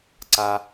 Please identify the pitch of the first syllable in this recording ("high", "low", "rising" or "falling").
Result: low